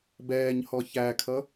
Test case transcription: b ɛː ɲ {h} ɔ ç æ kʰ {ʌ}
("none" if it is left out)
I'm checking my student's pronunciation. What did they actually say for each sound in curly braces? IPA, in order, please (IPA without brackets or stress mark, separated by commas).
h, ʌ